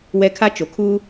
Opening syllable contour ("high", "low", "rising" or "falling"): high